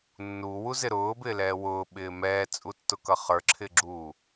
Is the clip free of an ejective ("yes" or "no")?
no